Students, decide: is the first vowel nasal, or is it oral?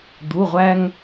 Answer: oral